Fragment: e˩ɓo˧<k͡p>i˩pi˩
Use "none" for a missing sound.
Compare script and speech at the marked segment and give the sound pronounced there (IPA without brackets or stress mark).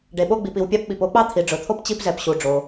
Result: ɡ͡b